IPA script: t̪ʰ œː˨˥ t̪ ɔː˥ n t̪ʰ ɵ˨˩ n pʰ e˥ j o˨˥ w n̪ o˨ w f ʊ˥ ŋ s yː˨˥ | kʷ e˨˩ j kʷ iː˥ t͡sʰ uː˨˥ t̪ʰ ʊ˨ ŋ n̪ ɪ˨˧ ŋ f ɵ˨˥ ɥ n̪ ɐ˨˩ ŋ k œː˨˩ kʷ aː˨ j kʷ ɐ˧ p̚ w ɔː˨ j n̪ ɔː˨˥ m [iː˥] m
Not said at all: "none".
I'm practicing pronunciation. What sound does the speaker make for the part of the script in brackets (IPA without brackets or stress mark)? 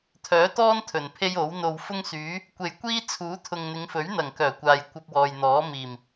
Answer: iː˨˩